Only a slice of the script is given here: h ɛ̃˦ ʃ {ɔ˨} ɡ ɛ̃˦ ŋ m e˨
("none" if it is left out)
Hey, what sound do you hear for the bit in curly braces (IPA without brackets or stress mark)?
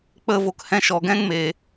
ɔ˨